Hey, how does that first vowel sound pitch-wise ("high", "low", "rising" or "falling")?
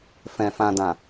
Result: low